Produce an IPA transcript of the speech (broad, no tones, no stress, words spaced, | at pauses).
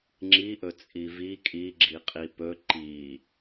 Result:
ŋ͡ǁiʔɵ t͡sʼivi kʼiɡ͡ǁi qʼipɵ ǃi